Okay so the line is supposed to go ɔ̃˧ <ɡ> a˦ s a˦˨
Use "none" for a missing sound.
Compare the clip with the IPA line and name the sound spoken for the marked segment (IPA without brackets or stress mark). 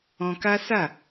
k